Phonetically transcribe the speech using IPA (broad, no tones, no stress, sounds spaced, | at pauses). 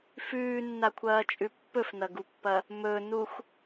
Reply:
f ʉː nː a kʷʰ ɐː t͡ʃʼ ʉ pː ɵ f n ɐ ɡ u pː ɐ | m ɵ n u x